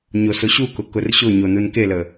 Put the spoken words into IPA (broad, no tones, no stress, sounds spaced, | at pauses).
ɲ o s o ɕ u k ʊ k ʊ r ɕ ʊ ɲ o n u n k e l ə